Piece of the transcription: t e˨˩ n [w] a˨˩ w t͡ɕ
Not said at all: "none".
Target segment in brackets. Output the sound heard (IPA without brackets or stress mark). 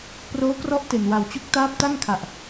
w